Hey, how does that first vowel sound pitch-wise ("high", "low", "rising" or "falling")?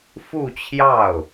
falling